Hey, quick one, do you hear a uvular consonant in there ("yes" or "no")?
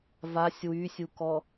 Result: no